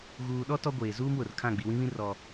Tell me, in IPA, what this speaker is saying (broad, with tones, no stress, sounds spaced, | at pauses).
ɣ uː˨ ɗ ɔ˦ t ɔ˦ ɡʷ eː˨ z uː˦ m w ʊ˨ r kʰ ã˦˨ ɡ͡b i˨ w ĩ˦ β ĩ˦ r ɔ˦